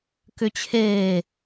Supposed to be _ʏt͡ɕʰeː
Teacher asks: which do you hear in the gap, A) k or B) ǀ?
A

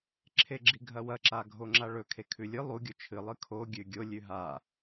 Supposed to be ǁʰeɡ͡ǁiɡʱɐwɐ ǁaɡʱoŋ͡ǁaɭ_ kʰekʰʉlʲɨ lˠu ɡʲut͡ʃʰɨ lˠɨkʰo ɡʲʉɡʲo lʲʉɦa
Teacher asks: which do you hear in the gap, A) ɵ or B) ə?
A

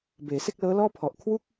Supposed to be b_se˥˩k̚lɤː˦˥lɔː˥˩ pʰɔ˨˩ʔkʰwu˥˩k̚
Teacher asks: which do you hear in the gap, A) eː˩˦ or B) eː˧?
A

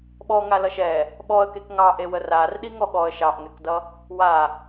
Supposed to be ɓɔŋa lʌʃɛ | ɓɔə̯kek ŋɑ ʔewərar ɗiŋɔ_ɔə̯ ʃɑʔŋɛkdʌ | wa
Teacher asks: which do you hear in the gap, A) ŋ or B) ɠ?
B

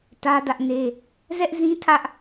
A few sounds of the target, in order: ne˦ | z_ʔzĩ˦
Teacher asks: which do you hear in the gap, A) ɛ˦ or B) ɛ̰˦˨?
A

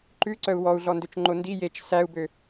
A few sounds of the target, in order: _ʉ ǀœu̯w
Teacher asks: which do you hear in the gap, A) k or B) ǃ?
B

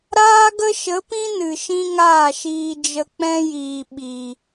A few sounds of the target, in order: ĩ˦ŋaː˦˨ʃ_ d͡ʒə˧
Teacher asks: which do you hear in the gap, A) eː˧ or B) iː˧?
B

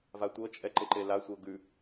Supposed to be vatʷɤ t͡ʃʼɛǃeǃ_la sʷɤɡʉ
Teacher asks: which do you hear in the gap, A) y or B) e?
B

